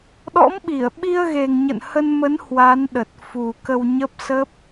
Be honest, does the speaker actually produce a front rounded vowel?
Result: no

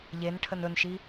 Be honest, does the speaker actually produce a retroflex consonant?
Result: yes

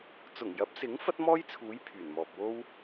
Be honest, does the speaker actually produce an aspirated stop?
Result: yes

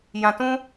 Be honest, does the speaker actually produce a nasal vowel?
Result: yes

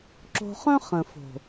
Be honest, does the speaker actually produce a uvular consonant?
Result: yes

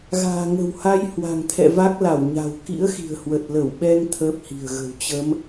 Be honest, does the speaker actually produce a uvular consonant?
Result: no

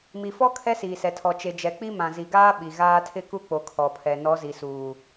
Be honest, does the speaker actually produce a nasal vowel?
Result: yes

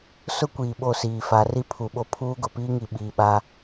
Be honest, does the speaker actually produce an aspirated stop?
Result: yes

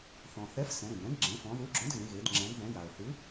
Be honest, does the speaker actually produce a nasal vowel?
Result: yes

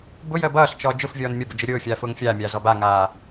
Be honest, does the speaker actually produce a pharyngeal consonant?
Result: no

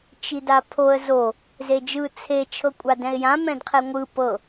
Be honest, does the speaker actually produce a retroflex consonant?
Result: no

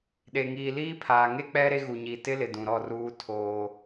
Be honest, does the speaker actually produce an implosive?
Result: yes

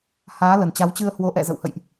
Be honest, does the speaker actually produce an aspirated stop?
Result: no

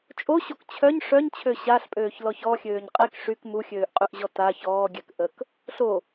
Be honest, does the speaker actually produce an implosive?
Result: no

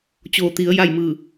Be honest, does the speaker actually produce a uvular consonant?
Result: no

